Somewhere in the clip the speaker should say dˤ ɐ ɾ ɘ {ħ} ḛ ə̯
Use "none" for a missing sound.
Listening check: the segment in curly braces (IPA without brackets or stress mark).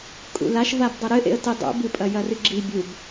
ʔ